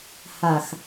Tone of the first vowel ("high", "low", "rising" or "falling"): low